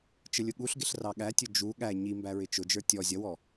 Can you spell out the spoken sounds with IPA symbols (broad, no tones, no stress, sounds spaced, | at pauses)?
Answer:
t͡ʃ ə lʲ ʊ ɠ u ɬ ɡ ɪ ɬ r ɑ ɠ æ tʲ ʊ d͡ʒ u ɠ æ ɲ i m b æ ɹ ɪ t͡ʃ ʊ d͡ʒ ə˞ tʲ ɔ zʲ ʌ w ɔ